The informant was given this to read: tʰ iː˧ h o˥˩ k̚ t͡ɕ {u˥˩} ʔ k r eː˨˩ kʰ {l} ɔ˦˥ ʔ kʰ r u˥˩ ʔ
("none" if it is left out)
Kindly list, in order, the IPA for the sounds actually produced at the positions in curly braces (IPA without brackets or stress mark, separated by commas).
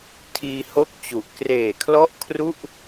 u˨˩, l